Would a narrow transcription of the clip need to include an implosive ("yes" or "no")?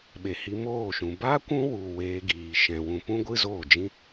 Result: yes